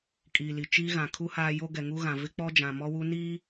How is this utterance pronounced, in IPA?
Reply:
kʼ iː˨ l i˨ t͡ʃ iː˦ ɣ ã˨ kʰ u˦ h aː˦ j o˦ ɡ ɛ˨ ŋ u˦ ɣ ã˨ v ɪ˦ k͡p ɔ˦ d͡ʒ ã˨ m ɔ˦ w u˦ n iː˦

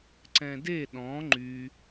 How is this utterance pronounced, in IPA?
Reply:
ǀ ɛ̃ d e ɗ ɔ̃ ŋ͡ǃ y

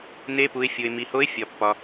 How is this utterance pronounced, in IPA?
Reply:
n e˧˥ p u˩˧ ɪ̯ fʲ o˩ ɪ̯ m i˩ h o˧˥ ɪ̯ fʲ ɒ˩ pː ɒ˩

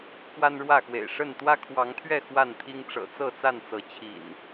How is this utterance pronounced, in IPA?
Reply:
k w a˦ n ɻ w ä˥˨ x w ḛ˨˩ ɪ̯ ʂ ə˥˨ n t̪ w ä˦ kʰ w ɑ˨˦ ŋ t̪ʰ ɥ ɛ˥˨ x w a˥˨ n t̪ʰ i˦ ŋ ʈ͡ʂ ɤ̰˨˩ t͡s ɤ˥˨ t͡s a˥˨ n t͡s ɤ˨˦ t͡ɕʰ ḭ˨˩ n

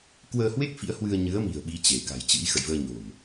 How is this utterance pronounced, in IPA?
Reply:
k w əː˧ h w e˦˥ k̚ f ḭ˧˥ ə̯ h w ɨ˧ ə̯ ɲ ɨ˨˦ ə̯ m i̤˨˩ ə̯ ɓ i˨˦ t͡ɕ e˧˩ k a̤˨˩ j t͡ɕ ɨ̰˧˥ j x ə̰˧˨ j v əː˧ ɲ o̤˨˩ m

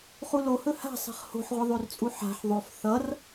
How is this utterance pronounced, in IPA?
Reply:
χ u l o h ɵ h a̤ sˤ e̤ χ h o̤ ħ ʁʷ ʌ ðˤ ø r t͡sʼ u ħ a̤ ħ ðˤ o f θ ʌ r

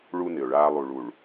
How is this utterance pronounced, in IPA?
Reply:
ɭ u˦ n ɪ˨ ʊ̯ ɭ aː˦ lˠ u˨ ɭ u˨ ɭ

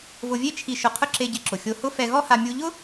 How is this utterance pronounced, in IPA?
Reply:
v ʊ˧ vʲ e˥ t͡ʃʰ i˧ ʃ ʊ˧ qʰ ʊ˥ ǁ e˧ ɟ ɪ˧ ǁ ʊ˩ xʲ o˧ h ʊ˥ f ɛ˧ ɣ ɔ˥ h a˧ mʲ u˧ ʎ ʊ˥

